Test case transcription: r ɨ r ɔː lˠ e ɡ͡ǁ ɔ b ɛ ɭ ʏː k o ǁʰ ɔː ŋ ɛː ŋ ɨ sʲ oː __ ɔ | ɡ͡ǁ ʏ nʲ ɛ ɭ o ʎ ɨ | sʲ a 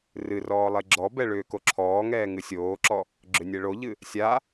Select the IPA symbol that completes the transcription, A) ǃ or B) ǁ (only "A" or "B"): B